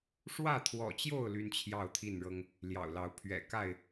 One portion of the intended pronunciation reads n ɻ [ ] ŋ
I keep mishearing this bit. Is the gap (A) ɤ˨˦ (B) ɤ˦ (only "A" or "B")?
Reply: B